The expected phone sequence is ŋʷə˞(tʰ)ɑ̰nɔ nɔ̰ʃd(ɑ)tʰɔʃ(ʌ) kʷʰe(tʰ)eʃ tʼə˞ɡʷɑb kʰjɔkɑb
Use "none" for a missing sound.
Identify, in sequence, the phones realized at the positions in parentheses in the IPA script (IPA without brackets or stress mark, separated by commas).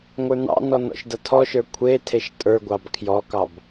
n, ʌ, ə˞, tʰ